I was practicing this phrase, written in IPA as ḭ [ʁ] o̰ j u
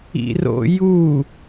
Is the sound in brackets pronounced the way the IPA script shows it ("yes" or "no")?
no